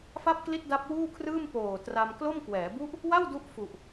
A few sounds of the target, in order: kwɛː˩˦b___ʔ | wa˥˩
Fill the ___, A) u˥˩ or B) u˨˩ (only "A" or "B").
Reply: A